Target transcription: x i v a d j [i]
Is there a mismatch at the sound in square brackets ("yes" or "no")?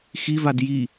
no